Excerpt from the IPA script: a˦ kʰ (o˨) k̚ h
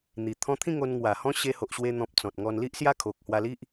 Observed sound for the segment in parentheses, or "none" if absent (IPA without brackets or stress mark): o˨